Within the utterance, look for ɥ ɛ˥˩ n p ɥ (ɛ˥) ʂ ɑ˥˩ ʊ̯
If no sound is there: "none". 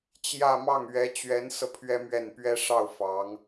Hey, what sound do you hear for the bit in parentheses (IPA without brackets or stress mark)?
ɛ˥